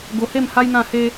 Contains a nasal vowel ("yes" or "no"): yes